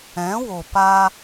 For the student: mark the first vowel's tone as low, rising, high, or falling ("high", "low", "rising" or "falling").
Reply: rising